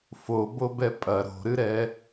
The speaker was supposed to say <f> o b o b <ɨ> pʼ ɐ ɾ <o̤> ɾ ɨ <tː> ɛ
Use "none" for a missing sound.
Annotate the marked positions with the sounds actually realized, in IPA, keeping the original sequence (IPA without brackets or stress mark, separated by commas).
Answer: f, ɛ, o̤, ɾ